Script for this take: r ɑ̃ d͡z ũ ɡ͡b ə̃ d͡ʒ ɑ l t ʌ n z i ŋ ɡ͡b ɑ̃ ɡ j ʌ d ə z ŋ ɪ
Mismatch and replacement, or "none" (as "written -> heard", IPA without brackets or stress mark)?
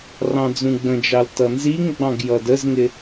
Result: none